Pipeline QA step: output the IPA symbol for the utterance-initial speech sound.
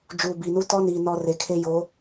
d͡ʒ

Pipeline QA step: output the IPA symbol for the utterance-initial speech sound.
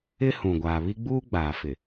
ɪ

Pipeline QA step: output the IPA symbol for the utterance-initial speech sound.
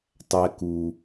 tˤ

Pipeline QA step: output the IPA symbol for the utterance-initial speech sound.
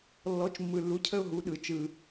lː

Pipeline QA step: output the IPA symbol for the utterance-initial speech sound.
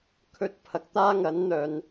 kʰ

